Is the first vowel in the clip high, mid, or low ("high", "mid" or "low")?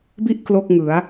high